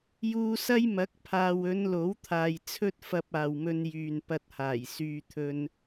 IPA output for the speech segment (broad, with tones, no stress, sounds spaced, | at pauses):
j uː˧ s ɐ˥ j m ɐ˨˥ k̚ pʰ aː˨ w ɵ˨˧ n l o˨˥ w t̪ʰ aː˨ j t͡sʰ ɵ˥ t̚ f ɐ˧ p̚ aː˨ w m ɵ˧ n j yː˨ n p ɐ˧ t̚ h aː˨˩ j s yː˧ t̪ʰ ɵ˧ n